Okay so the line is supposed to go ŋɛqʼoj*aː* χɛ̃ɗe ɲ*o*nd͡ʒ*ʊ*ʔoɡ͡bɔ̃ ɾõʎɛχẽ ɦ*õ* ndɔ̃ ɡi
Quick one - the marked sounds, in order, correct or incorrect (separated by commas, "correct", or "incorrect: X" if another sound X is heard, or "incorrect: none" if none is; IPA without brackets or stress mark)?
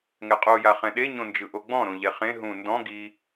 incorrect: a, incorrect: õ, incorrect: ɯ, incorrect: ũ